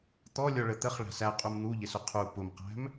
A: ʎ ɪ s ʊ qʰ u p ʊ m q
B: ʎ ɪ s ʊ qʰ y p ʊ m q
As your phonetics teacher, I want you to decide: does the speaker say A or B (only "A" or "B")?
A